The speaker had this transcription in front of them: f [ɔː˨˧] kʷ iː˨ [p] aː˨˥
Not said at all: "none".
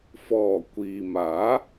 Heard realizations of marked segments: ɔː˨˩, m

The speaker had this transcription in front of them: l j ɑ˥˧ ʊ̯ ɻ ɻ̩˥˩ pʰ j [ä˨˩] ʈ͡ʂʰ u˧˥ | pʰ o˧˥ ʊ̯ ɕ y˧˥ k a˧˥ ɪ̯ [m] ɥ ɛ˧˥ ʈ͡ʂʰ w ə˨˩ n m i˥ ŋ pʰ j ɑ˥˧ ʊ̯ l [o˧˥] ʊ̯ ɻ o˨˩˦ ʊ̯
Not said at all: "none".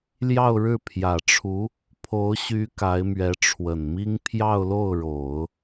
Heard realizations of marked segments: ä˨˩, m, o˥˩

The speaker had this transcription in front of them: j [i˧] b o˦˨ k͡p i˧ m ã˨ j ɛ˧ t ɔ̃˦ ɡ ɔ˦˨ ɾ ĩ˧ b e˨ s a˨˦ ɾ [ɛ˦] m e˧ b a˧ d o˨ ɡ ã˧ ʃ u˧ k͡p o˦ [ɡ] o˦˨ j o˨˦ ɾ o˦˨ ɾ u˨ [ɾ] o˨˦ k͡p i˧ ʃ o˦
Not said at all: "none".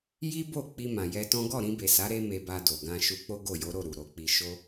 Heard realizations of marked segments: i˦, e˦, ɡ, ɾ

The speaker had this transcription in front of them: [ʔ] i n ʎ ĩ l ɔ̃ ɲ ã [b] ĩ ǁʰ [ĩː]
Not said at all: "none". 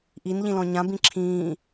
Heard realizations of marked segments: ʔ, b, ĩː

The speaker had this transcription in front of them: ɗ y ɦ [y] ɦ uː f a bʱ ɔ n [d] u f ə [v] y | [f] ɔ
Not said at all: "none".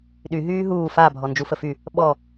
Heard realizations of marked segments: yː, d͡ʒ, f, ɓ

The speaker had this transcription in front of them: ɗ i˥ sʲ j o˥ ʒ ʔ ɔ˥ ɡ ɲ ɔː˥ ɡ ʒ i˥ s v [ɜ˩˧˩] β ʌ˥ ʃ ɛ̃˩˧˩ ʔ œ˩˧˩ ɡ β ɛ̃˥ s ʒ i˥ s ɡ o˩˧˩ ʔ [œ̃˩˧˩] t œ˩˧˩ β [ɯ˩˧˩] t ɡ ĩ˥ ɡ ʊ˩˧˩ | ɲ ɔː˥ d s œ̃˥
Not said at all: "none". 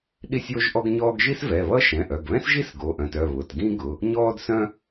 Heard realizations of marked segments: ɛ˩˧˩, œ̃˩˧˩, ʊ˩˧˩

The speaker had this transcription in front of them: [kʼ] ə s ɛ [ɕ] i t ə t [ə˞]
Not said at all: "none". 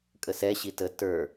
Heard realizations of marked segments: kʼ, ɕ, ə˞

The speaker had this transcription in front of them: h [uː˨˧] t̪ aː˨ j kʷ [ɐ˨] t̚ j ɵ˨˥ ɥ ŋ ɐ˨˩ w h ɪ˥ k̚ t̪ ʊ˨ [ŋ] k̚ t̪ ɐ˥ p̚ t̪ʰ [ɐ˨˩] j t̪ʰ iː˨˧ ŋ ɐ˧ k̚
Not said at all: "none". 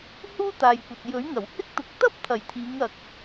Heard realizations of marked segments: uː˥, ɐ˨, none, ɐ˨˩

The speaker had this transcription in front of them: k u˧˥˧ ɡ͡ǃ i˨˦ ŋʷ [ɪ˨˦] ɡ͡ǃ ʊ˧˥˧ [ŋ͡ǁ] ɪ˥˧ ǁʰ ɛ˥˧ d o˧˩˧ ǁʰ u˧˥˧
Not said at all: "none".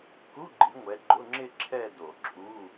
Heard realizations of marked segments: ɛ˨˦, ŋ͡ǁ

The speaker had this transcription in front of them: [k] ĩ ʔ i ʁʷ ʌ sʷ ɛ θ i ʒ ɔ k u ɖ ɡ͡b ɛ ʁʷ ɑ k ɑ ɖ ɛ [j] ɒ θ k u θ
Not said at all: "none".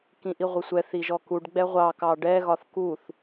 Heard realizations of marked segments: k, ɣ

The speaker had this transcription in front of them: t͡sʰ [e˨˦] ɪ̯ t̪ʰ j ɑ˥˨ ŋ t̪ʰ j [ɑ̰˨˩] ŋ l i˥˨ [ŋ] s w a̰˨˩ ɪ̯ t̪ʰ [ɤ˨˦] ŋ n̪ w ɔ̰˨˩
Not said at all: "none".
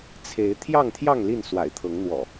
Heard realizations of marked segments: e˨˦, ɑ˥˨, n, ɤ˨˦

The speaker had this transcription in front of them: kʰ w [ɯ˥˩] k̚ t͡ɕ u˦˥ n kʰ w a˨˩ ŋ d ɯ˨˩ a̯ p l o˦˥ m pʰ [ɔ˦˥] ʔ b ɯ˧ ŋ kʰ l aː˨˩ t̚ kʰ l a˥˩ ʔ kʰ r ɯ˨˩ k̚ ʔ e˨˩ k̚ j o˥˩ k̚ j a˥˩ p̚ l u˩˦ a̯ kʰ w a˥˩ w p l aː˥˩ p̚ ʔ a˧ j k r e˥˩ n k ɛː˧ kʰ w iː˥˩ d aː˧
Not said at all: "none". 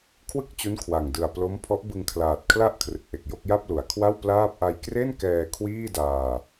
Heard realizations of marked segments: ɯ˥˩, ɔ˦˥

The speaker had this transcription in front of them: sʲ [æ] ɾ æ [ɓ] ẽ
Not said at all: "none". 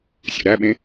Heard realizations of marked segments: æ̰, ɓ

